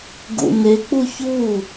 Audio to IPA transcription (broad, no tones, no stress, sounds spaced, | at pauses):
ɡ ṵ n e k͡p u ç u